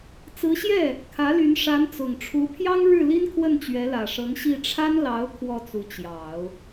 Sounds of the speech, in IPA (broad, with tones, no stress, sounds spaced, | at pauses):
t͡s ɹ̩˧˥ ɕ j ɛ˥˩ | kʰ ä˧˥ l y˧˥ n ʂ a˧˥ n t͡s ʊ˨˩ ŋ ʈ͡ʂʰ u˧˥ pʰ j ɑ˥ ŋ ɻ ɻ̩˥˩ l i˥ n kʰ w ə˥˩ n t͡ɕ ɥ ɛ˧˥ l ä˨˩ ʂ ɤ˧˥ ŋ ɕ i˥˩ ʈ͡ʂʰ a˥ n l ɑ˧˥ ʊ̯ kʰ w ɔ˥˩ t͡s u˧˥ t͡ɕ j ɑ˨˩˦ ʊ̯